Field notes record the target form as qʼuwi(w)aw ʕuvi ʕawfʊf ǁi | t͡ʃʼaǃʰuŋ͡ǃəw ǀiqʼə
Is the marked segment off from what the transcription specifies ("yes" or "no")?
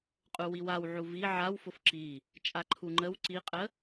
no